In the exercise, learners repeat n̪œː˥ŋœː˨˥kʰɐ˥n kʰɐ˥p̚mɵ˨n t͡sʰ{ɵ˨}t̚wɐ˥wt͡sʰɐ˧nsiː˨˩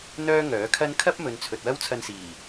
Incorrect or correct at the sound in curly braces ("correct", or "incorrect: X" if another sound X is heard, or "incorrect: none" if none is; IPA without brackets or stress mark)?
correct